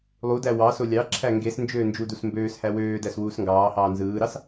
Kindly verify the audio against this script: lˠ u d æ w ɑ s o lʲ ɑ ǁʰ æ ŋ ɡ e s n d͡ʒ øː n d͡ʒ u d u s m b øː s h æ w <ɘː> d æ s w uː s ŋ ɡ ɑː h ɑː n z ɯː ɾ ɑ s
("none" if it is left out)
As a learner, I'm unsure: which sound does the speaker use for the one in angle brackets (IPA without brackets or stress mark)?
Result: øː